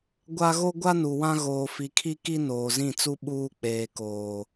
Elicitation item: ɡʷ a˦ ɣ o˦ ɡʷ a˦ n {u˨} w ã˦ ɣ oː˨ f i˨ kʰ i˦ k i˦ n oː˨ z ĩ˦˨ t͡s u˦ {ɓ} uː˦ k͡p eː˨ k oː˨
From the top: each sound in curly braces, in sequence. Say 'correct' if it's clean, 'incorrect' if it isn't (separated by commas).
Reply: correct, correct